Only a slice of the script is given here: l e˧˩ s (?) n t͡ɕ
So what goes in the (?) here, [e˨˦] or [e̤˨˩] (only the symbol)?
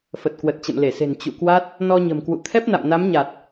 e̤˨˩